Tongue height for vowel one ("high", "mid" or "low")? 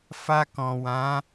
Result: low